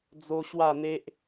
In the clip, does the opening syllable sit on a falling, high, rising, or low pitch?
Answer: high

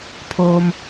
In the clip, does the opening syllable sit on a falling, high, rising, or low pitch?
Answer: low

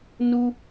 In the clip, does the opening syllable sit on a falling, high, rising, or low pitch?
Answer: high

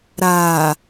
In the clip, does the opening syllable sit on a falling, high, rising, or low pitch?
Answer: low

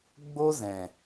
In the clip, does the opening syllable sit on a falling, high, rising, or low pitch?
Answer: high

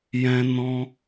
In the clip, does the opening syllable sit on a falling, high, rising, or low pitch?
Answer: high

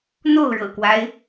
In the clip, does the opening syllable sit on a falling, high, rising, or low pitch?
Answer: falling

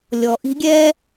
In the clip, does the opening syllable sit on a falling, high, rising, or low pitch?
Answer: low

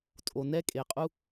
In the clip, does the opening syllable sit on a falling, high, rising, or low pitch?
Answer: low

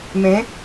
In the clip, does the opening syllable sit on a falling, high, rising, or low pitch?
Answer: rising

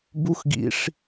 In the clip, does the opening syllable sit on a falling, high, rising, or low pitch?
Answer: high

